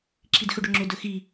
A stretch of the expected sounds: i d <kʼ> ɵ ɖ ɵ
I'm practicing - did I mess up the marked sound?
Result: yes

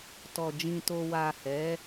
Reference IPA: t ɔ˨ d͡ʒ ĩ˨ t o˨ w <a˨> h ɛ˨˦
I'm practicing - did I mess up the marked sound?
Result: no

